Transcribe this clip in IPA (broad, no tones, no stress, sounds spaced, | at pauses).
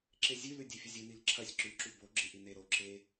ǁ e zʲ ʉ l ʉ dʲ e fʲ ɵ zʲ ɨ n i l ǁʰ ɐ sʲ ǁ ʉ ǁ u b o ɡ͡ǁ ɨ ʔ i n e ɾ o ǁʰ e